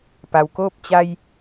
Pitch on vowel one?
low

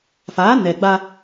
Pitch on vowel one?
rising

